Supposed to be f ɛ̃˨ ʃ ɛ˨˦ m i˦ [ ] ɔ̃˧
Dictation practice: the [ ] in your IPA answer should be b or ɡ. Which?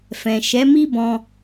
b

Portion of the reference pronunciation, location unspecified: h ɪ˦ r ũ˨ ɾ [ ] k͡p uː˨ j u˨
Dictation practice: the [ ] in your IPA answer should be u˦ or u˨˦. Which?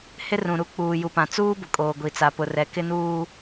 u˦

